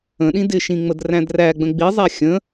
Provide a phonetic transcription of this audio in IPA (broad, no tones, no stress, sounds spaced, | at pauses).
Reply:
ə̃ ɗ ĩ d ɪ ʃ ĩ ŋ͡m ə d r æ̃ d r æ ɡ͡b ə̃ ɡ͡b i zˤ æ xʲ ə̃